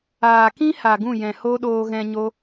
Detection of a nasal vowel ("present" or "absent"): present